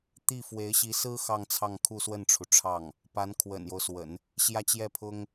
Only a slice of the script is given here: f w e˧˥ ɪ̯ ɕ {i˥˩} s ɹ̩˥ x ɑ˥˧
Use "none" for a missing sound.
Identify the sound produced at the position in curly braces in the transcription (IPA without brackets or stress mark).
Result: i˧˥